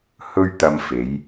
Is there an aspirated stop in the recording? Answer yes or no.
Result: no